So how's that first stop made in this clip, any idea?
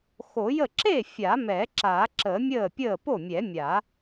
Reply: click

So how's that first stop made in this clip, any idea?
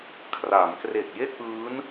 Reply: aspirated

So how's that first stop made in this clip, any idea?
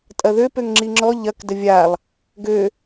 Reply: ejective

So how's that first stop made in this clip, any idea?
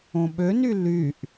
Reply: implosive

